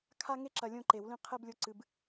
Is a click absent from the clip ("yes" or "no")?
no